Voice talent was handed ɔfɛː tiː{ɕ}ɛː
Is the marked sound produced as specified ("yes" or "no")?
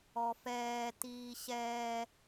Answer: yes